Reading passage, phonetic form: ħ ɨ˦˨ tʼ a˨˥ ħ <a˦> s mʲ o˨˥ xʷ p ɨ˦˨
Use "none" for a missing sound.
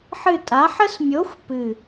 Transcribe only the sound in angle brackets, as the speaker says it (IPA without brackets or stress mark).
ə˦